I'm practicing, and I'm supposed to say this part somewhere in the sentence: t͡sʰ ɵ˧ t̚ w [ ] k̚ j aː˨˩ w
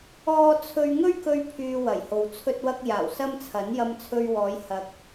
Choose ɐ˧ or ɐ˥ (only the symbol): ɐ˧